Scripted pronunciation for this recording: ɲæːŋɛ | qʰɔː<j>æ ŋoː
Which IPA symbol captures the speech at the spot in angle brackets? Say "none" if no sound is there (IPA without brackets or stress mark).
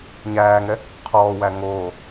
w